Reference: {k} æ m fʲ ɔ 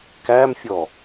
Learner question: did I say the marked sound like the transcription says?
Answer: yes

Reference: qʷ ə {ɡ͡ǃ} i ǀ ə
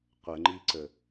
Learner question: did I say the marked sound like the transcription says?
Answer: no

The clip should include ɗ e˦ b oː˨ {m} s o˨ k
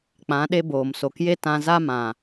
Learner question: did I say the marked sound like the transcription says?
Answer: yes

